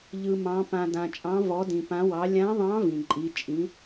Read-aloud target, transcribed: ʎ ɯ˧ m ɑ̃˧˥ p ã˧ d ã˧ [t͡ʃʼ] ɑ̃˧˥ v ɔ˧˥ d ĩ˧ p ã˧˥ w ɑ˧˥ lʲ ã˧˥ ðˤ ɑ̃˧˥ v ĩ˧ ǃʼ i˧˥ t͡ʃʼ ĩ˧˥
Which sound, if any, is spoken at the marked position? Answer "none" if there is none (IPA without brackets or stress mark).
t͡ʃʼ